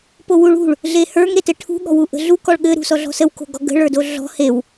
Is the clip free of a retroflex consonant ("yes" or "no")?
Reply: no